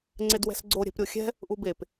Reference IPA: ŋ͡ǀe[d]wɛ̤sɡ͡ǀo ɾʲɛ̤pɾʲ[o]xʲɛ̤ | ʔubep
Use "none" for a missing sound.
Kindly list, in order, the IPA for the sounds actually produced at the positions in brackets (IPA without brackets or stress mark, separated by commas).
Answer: d, o